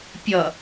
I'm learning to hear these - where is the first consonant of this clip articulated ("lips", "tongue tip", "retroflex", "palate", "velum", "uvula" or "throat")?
lips